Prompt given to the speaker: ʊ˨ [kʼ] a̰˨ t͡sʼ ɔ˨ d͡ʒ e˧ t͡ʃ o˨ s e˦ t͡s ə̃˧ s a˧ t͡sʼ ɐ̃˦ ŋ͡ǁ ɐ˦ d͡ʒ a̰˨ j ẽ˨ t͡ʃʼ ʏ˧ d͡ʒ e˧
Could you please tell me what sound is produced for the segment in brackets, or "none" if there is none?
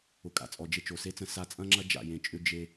kʼ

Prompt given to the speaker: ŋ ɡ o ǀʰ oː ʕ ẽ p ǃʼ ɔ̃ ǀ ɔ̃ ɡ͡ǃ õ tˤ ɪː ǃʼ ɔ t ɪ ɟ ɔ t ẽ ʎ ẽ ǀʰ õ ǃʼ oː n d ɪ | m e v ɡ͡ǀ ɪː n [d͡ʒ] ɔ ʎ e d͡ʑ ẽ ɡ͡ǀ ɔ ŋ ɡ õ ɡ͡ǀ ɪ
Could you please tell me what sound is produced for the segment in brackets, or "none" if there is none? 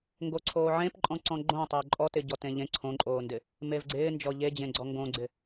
d͡ʒ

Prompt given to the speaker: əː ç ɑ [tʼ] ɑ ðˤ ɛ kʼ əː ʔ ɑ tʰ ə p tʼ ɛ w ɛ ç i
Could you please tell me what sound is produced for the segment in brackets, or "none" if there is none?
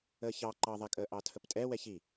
ǃ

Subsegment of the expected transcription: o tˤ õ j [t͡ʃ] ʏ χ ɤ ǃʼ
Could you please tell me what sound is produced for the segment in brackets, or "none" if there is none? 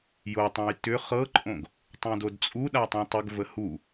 t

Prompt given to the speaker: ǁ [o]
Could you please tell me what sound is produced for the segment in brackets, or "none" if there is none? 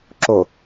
o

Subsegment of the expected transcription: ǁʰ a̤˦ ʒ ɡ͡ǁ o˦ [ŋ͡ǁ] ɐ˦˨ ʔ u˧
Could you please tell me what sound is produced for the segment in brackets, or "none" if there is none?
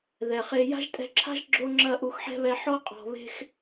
ŋ͡ǁ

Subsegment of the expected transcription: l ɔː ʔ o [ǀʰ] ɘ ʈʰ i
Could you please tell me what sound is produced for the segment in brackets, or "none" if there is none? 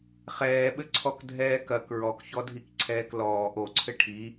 ǀʰ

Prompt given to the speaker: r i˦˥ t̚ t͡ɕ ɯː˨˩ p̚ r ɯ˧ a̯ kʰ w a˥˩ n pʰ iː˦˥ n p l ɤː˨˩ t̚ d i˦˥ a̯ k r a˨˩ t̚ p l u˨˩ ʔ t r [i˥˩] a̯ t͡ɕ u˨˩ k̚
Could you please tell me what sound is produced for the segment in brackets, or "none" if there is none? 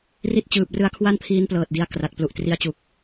i˧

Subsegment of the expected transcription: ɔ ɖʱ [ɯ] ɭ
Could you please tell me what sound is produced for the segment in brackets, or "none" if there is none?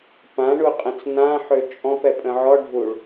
u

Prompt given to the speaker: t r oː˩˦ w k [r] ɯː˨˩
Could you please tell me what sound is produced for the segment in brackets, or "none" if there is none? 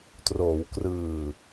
r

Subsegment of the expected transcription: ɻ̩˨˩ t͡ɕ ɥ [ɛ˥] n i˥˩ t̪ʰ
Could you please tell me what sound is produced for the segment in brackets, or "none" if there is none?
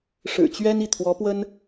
ɛ˥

